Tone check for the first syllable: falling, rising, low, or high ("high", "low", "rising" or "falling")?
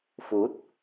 rising